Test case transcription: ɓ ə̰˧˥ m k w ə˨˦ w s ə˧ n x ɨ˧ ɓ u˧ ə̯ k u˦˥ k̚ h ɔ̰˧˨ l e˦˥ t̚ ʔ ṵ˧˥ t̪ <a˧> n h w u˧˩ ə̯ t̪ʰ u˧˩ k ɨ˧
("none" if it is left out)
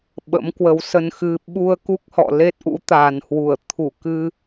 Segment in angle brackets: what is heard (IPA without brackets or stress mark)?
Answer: a˨˩